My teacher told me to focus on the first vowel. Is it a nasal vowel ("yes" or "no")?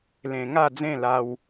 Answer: yes